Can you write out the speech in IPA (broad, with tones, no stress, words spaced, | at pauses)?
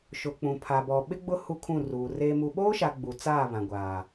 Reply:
ʃʊ˨k͡pũ˨ pʰa˨bɔ˨ ɓɪ˦ɡ͡bʊ˦ hu˦kʰũ˦˨ruː˨ reː˨mu˨ɓoː˦ʃa˨ ɡ͡bu˨t͡saː˦˨ βã˨ɡʷaː˨